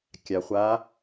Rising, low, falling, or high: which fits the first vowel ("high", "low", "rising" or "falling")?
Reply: low